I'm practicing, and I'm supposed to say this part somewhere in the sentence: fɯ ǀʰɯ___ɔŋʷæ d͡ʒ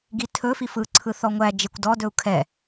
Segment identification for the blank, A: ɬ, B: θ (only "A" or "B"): B